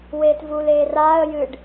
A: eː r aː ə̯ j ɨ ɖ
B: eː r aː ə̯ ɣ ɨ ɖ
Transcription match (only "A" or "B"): A